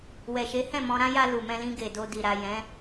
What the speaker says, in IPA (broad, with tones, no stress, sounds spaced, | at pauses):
w ɛ˨ ʃ e˨˦ h ɛ̃˦˨ m ɔ̃˧ ɾ ã˦ j a˧ l u˨ m ɛ̃˧ l ĩ˧ ɡ e˨ d o˧ d i˨ ɾ a˨ j ɛ̃˨˦